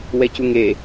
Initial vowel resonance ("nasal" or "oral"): oral